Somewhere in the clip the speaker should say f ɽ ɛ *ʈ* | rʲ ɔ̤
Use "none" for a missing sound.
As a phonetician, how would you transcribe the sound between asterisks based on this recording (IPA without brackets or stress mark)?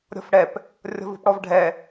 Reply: p